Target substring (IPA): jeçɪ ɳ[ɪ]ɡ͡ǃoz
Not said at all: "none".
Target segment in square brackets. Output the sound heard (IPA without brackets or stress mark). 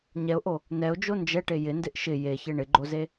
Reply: ɪ